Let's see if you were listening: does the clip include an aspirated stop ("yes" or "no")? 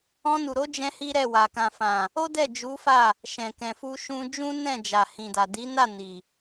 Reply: no